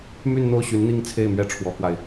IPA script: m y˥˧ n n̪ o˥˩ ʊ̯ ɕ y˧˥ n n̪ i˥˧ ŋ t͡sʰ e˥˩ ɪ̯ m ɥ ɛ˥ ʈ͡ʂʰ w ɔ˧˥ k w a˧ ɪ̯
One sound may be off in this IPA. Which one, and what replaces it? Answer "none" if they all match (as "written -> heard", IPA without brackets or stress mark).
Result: none